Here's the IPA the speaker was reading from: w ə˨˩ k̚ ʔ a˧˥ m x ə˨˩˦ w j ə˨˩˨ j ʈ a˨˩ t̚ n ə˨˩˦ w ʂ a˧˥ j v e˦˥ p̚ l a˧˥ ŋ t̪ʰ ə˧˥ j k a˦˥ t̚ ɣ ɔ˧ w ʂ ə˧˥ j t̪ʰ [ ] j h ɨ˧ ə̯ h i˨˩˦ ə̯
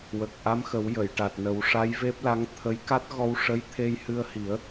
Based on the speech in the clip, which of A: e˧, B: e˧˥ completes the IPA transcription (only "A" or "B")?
A